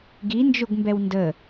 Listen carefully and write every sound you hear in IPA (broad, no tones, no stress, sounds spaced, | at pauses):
ɡ i n d͡ʒ o ɡ m b ɛ w n d ə